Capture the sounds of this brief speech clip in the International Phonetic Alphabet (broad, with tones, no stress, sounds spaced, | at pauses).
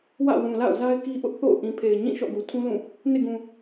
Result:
w ä̰˦˨ w ũ˨ l a̰˦˨ ʊ̯ z a˦ ɪ̯ k i˦ ʔ ʊ˦ ʔ θ o̰˦˨ ʊ̯ ʔ ĩ˨ pʰ e˨ ɪ̯ ɲ ĩ˦˨ ʃ ɔ̰˦˨ ɡ u˨ tʰ ũ˦ l ũ˦˨ | n ḛ˦˨ ɡ ũ˨